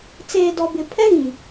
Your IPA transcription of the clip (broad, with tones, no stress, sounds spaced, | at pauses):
t͡s eː˨ d ɔ˨ b ɪ˨ pʰ ɛ˦ ɣ ĩ˨